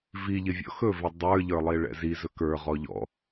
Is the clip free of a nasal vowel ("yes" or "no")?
yes